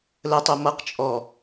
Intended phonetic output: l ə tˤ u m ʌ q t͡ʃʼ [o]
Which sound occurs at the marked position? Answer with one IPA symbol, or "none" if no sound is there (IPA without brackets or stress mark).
ɔ